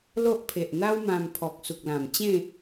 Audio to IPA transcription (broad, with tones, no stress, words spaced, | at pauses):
lo˦ʔpʰe˨ʔn̪a˦wmã˧m pʰɔ˨k̚su˨k̚lã˨˩mt͡ɕẽ˥˧